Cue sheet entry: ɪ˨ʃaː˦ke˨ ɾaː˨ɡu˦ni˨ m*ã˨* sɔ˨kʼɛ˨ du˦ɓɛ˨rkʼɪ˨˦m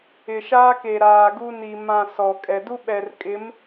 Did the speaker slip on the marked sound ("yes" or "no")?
no